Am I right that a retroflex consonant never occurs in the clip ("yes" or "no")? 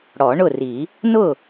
no